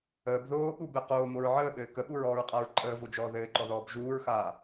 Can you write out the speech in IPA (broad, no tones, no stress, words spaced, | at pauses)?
əːb ðoː ɠubɘ qoːmoɹ ʕəːɓɘː kəɓuɹɔːɹqʼaɹ ǃʼəːvod͡ʒɔː ðɘːǃɔðɔːb ʒuːɹxaː